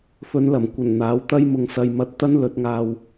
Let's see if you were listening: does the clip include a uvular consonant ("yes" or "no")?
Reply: no